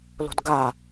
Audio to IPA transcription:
l o̤ d ɡ a

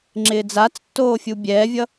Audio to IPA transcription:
ŋ͡ǁ ɪː d͡z a t͡s tː oː fʲ u bʲ ɛː vʲ ʌ

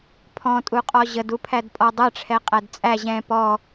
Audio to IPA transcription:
pʰ ɔ̃ tʼ u qʼ ɔ ʑ ə d u pʰ æ d pʼ ɔ dˤ ɛ ʈ͡ʂʰ ɛ qʼ æ d t͡sʼ æ ʑ ɛ̃ p ɔ

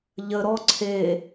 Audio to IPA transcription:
ʎ ə ɾ ɔ ǀʰ e

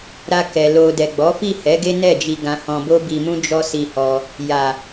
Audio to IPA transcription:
ɾ a˧ k ɛ˨ l o˨ d ɛ˨ ɡ͡b ɔ˨˦ f i˦˨ h ɛ˨˦ ɡ e˦ n ɛ˦˨ d͡ʒ i˧ ɡ ã˧ h ɔ̃˧ b o˦ b i˧ m ũ˦ d͡ʒ ɔ˦ s i˧ h ɔ˧ | j a˨

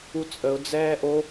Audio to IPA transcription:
u t͡sʼ ə ʊ̯ d͡z ɛː ʔ o

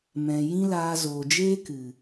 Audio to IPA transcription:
m ɛ̃˨ j ĩ˦ l aː˧ z oː˨ d͡ʒ eː˦ k ɨ˨

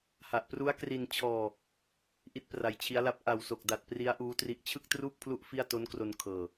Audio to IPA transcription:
h a˨˩ ʔ p r u˦˥ a̯ k r i˧ n t͡ɕʰ ɔː˧ | ʔ i˥˩ t̚ p r a˧ j t͡ɕʰ i˦˥ a̯ l a˦˥ p̚ ʔ a˨˩ w s o˨˩ k̚ d a˨˩ t̚ p r i˦˥ a̯ ʔ uː˦˥ t r i˦˥ ʔ t͡ɕʰ ɯ˥˩ k̚ t r uː˥˩ k̚ pʰ l u˦˥ ʔ f i˥˩ a̯ t o˦˥ n k r o˧ n kʰ ɤː˨˩

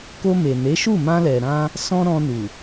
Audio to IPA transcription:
k o˧ m e˨ n e˨˦ ʃ u˦˨ m ã˧ l ɛ˨ ɾ ã˧ | s ɔ̃˦ ɾ ɔ̃˧ n u˨

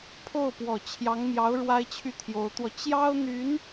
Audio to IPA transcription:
pʰ o˥˩ ʊ̯ p w ɔ˨˩ t͡ɕʰ j ɑ˧˥ ŋ m j ɑ˧˥ ʊ̯ ɻ w a˥ ɪ̯ t͡ɕʰ y˥˩ t̪ʰ j o˧˥ ʊ̯ t̪ w ɔ˧ t͡ɕ j ɑ˥ ʊ̯ n̪ y˧˥ n

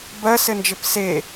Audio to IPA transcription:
b ɜ s ɘ n d͡ʒ ɘ p s e

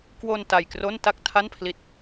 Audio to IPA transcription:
k w o˧ n t a˧ j k r o˥˩ n t a˥˩ k̚ tʰ a˥˩ n pʰ l i˦˥ t̚

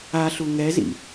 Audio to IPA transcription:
a ɬ u ŋ ɛ z ḭ

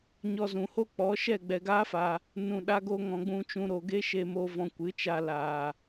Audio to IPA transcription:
ɲ ɔ˧ z ũ˨ h o˦ k͡p ɔ˨˦ ʃ ɛ˦˨ ɡ͡b ɛ˨ ɡ aː˦ f a˨ | n ũ˨ ɗ a˧ ɡ o˧ ŋ ɔ̃˨ ɡ͡b ũ˧ t͡ʃ ũ˧ ɾ o˨ ɡ e˦ ʃ e˧ m o˧ v ɔ̃˧ kʷ ɨ˨˦ t͡ʃ a˧ l aː˨

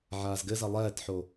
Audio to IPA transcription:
ʕ aː z ɡ ɘ z ɐ lˠ ɛː t ħ o

